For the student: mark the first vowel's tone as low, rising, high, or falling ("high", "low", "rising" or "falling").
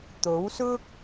rising